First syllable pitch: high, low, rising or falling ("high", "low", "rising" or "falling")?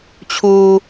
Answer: high